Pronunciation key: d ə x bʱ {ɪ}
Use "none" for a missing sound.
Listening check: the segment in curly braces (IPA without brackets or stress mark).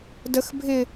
ɪ